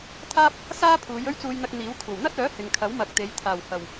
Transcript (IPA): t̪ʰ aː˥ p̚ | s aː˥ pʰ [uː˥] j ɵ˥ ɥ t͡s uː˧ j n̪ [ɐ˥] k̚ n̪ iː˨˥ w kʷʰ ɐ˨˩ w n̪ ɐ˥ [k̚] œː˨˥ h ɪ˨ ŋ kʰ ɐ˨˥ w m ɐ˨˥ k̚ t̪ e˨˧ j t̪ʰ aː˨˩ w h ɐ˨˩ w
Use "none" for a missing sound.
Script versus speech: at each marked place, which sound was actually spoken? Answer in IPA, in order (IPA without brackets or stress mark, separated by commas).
uː˨˧, ɐ˧, t̚